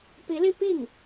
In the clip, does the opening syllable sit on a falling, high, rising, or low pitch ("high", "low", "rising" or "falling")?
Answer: rising